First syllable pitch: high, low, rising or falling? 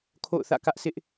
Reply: falling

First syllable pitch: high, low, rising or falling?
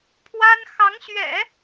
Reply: high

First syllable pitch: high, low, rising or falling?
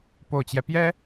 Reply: low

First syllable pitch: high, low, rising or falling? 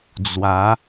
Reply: rising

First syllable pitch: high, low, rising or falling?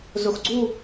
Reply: low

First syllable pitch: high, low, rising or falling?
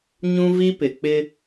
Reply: high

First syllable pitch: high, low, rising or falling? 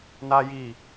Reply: high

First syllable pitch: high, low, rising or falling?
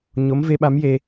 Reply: rising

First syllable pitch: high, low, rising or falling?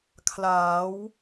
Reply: rising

